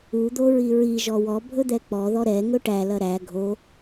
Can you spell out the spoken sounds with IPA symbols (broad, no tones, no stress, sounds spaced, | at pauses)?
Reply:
u d̪ o ɹ i ɹ i ʒ ɔ w ɔ bʱ ɵ d̪ ɛ k͡p ɔ ð ɔ ɾ ɛ ŋ ɵ ʈ æ l ɐ ɾ æ ɡʱ o